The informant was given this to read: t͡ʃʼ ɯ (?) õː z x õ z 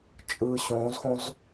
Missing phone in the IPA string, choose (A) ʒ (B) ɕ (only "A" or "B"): B